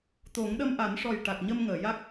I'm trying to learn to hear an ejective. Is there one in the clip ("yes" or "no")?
no